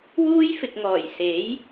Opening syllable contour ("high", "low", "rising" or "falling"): high